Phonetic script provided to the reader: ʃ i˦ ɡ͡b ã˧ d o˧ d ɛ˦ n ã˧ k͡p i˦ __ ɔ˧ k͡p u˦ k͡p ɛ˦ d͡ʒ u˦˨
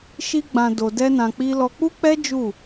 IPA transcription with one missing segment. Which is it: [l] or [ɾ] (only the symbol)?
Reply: l